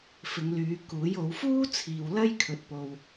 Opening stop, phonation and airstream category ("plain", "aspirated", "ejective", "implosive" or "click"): plain